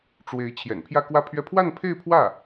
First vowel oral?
yes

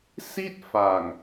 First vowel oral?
yes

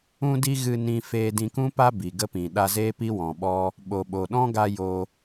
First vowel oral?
no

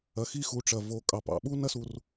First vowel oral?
yes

